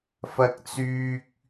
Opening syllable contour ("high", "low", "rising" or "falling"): high